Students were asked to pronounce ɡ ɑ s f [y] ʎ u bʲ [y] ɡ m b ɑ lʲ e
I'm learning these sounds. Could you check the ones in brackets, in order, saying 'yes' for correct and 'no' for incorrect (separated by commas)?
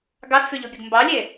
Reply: yes, no